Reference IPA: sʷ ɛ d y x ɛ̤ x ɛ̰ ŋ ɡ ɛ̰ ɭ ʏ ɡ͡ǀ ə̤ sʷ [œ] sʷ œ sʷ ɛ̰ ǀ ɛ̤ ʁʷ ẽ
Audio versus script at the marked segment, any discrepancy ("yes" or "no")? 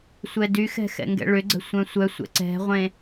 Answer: yes